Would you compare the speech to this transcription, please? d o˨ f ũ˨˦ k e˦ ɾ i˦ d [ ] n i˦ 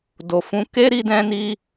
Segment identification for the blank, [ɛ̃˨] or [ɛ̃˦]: ɛ̃˦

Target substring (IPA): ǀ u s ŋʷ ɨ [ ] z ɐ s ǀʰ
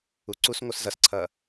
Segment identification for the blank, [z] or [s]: s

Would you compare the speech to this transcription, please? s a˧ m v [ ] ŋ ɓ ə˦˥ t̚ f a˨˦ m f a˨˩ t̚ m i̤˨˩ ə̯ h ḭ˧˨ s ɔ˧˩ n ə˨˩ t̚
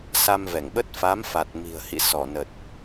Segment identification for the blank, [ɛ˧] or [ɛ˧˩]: ɛ˧˩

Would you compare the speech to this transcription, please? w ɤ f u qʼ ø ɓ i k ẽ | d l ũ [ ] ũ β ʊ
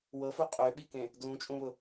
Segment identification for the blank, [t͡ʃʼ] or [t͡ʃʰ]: t͡ʃʼ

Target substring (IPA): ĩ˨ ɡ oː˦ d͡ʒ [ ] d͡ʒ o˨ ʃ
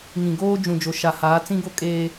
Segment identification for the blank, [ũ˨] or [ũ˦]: ũ˨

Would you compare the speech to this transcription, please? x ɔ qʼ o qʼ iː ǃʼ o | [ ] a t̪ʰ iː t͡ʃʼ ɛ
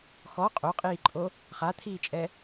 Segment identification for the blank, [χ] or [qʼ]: χ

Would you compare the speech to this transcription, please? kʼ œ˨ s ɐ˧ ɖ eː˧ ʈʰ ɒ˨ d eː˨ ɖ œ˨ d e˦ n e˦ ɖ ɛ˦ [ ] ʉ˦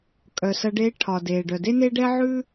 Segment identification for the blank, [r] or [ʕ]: ʕ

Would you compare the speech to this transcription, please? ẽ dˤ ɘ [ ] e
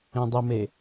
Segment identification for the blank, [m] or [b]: m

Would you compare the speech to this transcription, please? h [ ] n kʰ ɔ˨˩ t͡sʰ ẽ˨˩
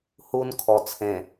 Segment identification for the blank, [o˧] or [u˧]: u˧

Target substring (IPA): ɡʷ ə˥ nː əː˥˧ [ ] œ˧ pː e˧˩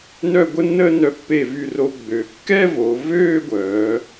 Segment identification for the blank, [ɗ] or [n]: n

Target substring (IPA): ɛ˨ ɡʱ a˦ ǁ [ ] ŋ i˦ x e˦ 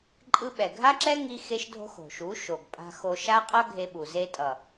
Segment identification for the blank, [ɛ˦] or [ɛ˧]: ɛ˦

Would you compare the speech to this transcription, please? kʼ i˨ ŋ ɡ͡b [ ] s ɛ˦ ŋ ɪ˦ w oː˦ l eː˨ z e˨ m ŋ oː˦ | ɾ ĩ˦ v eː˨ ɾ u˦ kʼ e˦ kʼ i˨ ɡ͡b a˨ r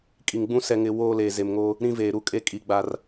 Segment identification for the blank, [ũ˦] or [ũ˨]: ũ˦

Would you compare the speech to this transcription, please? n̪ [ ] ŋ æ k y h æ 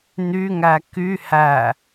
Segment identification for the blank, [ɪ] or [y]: y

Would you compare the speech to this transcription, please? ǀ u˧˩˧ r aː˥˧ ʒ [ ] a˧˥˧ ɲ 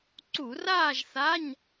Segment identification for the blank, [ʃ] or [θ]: θ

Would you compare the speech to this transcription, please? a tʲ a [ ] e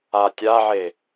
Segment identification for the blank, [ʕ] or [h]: ʕ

